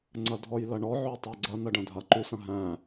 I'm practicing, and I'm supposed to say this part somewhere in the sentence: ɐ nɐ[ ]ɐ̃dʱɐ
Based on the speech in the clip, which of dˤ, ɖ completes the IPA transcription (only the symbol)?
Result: ɖ